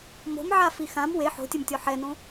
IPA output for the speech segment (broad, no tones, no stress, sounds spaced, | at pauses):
m o̤ m ʕ a f i x ã m w e ħ o̤ tʲ ɘ m tʲ ɔ ħ ɛ n õ